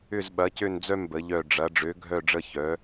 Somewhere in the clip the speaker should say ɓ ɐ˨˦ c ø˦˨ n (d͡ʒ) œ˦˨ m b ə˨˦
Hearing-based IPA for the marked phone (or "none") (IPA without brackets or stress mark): d͡z